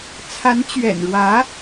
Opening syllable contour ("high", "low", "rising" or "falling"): rising